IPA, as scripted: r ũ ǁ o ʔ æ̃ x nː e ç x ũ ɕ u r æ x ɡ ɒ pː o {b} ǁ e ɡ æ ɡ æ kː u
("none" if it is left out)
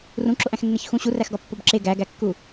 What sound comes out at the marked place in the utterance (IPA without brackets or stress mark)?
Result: b